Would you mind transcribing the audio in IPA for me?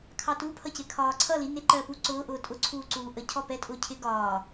kʰ ɑ t u pʰ ʌ c ɪ kʰ ɒː ǀʰ ʌ l i n ɪ ǃ ɜ p u ǀ ʊː ʔ ʊː tʼ ʊ ǀʰ uː ǀ uː ʔ ə cʰ ɔ p ɛ tʼ ʊː cʰ ɪ ɡ ɒː

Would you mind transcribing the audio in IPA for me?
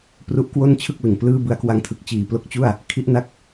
p r u˦˥ ʔ k w o˥˩ n t͡ɕʰ ɯ˥˩ k̚ l ɯ˨˩ ŋ p l ɯː˥˩ b ɯ˦˥ a̯ k w a˧ ŋ tʰ ɯ˨˩ k̚ t͡ɕ iː˨˩ p l o˦˥ k̚ t͡ɕ u˥˩ a̯ | kʰ i˥˩ ʔ n a˦˥ k̚

